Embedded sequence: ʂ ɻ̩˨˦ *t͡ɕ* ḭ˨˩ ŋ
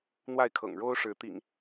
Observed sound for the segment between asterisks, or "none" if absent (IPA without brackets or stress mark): t̪